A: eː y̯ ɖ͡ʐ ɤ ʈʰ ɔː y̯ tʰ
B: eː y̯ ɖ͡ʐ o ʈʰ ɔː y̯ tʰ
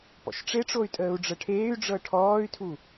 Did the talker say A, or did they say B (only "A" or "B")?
A